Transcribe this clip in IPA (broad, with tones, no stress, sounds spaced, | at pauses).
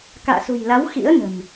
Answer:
k a̰ː˧˨ s ṳ˨˩ j l a˨˦ w x ḭ˧˥ ə̯ n ə̤˨˩ n